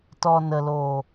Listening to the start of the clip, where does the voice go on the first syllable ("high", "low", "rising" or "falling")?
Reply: low